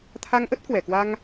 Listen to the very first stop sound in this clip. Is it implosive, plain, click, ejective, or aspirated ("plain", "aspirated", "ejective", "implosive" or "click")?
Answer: aspirated